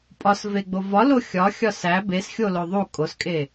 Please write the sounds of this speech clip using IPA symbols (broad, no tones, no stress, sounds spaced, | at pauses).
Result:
pʼ ɒ s v e ɡ͡b o v ɒ l o xʲ ɒ xʲ ɒ s æ b e s xʲ o l o ðˤ u kʼ o s kʼ e